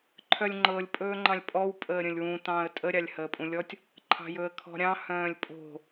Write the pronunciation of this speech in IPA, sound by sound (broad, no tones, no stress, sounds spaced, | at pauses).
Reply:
ǃʰ œ lʲ ŋ͡ǃ ɤ lʲ pʼ ɵː ŋ͡ǃ ɑ̃ lʲ pʼ ɔ w pʼ əː ɾʲ ə̃ lʲ w ũ t ɑ̃ː ə̯ tʼ ə ɾʲ ɑ lʲ h əː pʼ ũ lʲ ɔ tʲ | ǃʰ ɑ̤ j ɵ ə̯ kʰ ɔ̤ ɾʲ ɑ̃ h œ̃ː lʲ pʼ o̤